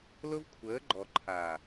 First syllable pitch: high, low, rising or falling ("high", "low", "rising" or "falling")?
high